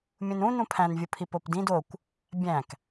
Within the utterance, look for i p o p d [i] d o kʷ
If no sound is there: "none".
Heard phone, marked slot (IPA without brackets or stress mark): ĩ